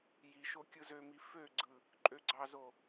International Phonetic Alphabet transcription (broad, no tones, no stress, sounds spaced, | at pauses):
j i ʃ o kʲ ɯ z ø m i f ø ɡ͡ǀ ɯ | ǃʼ ø ɡ͡ǀ ɑ z o